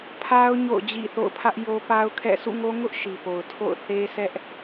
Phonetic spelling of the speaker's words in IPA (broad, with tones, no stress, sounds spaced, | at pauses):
pʰ a˦ ʊ̯ ɲ o̰˦˨ ʊ̯ d͡ʑ ḭ˦˨ θ o̰˦˨ ʊ̯ pʰ ä˦ ʔ j o˦ p a˦ ʊ̯ kʰ ɛ̰˦˨ sʰ ṵ˦˨ ŋ o˦ ŋ ʊ˦ ʔ ʃ i˨ p o˨ ʊ̯ tʰ o̰˦˨ ʊ̯ θ e˦ sʰ ɛ˦ ʔ